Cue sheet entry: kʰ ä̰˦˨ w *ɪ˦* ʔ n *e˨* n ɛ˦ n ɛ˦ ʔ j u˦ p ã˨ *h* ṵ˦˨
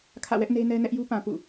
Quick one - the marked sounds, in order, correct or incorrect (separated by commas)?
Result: incorrect, incorrect, incorrect